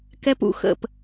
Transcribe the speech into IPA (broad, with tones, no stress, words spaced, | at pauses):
kɛ˧p ṵ˩˧xə̰˧˩p